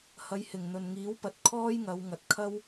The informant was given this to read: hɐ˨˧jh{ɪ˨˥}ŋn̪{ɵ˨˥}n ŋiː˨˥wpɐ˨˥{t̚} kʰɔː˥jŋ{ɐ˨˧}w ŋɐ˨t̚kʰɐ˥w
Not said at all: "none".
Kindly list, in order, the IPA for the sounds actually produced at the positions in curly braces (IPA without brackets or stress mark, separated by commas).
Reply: ɪ˨˩, ɵ˨, t̚, ɐ˨˧